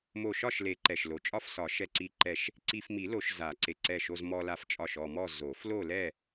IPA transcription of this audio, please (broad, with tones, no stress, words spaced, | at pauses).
mo˧˩ʃɒ˥˨ʃle˨˩˦ǃɛ˩ʃ lo˩t͡ʃʼɒ˥˨fsɒ˨˩˦ ʃɛ˧˩ǀi˧˩ǃɛ˧˩ʃ | ǀi˧fmi˨˩˦lo˨˩˦ʃ za˨˩˦ǀe˩ǀɛ˧˩ʃo˧z mɔ˧la˧ft͡ʃʼɒ˧˩ʃ ɔ˧˩mɔ˥˨ zo˨˩˦f lo˥˨ lɛ˥˨